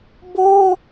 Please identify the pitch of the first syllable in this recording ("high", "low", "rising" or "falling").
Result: high